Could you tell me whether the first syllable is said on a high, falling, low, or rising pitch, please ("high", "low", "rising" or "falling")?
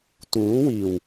rising